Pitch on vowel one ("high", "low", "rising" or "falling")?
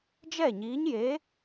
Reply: falling